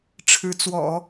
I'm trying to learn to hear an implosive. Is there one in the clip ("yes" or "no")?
no